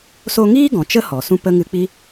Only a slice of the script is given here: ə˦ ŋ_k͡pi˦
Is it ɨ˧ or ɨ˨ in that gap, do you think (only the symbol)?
ɨ˧